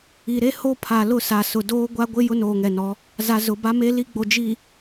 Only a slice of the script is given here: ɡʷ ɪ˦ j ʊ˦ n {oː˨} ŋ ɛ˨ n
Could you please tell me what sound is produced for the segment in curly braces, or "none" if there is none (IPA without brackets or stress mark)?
oː˨